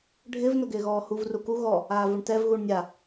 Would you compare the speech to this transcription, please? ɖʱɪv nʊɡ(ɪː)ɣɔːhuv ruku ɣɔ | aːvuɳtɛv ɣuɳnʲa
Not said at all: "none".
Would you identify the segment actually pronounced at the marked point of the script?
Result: ɪː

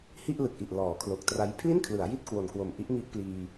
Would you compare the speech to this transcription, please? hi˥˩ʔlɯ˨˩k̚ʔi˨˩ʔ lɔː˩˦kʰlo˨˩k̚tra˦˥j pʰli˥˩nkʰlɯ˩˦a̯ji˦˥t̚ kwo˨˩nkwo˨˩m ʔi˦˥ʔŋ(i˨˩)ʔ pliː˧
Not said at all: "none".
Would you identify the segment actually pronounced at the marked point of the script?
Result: i˦˥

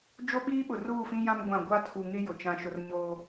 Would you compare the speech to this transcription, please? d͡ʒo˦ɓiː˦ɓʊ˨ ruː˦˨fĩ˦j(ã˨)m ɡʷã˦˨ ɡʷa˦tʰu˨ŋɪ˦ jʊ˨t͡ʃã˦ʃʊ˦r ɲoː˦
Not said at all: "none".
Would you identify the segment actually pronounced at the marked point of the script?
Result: ã˦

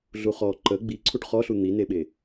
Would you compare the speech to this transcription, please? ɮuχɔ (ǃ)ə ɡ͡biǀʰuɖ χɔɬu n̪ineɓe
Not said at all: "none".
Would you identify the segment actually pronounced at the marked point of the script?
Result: ǃ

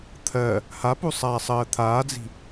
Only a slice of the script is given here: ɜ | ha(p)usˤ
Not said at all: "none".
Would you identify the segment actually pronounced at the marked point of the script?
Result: p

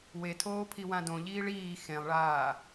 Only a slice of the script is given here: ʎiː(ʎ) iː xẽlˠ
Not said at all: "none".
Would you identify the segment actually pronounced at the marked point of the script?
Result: ɭ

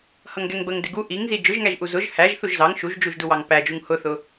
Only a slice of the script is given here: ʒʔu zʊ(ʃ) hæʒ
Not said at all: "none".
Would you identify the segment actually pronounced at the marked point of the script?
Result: ʒ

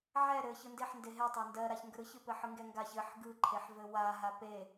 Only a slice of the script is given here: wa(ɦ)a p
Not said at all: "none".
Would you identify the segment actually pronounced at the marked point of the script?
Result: ɦ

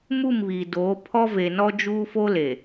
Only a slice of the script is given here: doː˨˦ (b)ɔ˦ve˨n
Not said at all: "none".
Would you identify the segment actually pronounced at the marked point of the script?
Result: pʰ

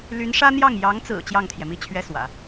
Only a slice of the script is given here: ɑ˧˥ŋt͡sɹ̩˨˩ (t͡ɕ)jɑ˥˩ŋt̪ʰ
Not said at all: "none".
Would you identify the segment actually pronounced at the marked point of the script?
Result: t͡ɕ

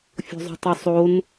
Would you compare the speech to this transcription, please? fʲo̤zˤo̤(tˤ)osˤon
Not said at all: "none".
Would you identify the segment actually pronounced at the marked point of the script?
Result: tˤ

